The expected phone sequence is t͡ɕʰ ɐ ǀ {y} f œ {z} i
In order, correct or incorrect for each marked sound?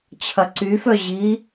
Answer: correct, incorrect: ʑ

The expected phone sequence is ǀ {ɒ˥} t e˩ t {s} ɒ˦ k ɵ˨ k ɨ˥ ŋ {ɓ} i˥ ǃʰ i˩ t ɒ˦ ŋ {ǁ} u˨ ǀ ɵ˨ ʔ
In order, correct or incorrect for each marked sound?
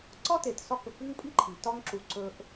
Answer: correct, correct, incorrect: pʼ, correct

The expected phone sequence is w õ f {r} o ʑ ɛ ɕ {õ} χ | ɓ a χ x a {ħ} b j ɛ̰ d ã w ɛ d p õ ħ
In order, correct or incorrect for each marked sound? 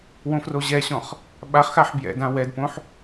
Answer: correct, incorrect: ɔ̃, correct

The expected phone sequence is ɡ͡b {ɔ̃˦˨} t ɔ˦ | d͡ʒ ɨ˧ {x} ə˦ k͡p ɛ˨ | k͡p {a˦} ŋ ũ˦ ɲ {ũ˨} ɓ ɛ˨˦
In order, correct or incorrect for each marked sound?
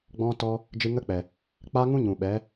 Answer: incorrect: ɔ̃˦, incorrect: ŋ, correct, correct

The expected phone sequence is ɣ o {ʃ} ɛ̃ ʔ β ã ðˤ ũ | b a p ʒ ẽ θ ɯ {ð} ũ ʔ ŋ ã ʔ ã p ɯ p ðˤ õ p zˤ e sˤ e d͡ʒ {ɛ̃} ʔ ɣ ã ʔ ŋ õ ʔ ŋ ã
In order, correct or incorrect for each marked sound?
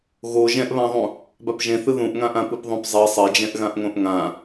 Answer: incorrect: ʒ, correct, correct

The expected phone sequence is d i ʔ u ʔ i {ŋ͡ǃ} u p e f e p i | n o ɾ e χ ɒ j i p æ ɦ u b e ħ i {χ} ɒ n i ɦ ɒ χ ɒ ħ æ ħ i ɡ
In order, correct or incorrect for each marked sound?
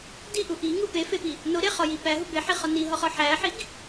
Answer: incorrect: ŋ, correct

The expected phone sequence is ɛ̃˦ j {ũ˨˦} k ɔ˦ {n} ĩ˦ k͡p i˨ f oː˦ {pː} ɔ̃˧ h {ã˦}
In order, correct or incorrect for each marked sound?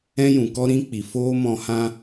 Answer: incorrect: ũ˨, incorrect: ɾ, incorrect: m, correct

